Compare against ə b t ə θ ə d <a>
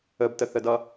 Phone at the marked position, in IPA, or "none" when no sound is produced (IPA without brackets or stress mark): ʌ